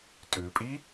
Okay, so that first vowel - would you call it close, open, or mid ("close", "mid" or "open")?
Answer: close